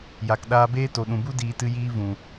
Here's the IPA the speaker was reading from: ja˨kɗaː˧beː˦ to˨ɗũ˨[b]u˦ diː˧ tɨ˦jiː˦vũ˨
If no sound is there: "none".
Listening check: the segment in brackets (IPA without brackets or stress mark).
b